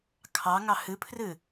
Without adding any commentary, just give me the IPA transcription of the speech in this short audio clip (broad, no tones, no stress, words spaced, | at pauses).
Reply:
kʰɑŋɑ hɨpʰrɨ